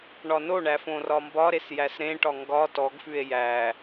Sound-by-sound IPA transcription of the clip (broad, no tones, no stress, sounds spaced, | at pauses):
ɳ ɒ n o ɳ æ f õ r ɒ m b ɒ ɾ e s j æ s ɾ ẽ ʈ ɒ ŋ ɡ ɒ t ɔ ɡ f ʉ e̯ j æ